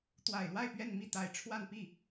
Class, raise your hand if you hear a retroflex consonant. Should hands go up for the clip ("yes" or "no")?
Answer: yes